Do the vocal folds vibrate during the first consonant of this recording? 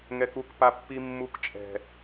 yes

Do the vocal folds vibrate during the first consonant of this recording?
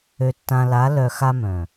no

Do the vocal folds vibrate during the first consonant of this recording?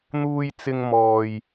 yes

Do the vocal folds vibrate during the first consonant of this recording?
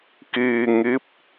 no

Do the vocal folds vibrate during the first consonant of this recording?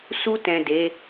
no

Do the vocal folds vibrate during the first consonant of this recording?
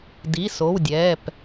yes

